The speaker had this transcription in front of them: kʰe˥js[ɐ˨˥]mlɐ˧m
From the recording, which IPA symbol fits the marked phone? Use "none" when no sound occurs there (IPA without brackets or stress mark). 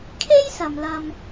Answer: ɐ˨